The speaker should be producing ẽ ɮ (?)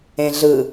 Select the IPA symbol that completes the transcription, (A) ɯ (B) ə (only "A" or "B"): A